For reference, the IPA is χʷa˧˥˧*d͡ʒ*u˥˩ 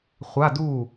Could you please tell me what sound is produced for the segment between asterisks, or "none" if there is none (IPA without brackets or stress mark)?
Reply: d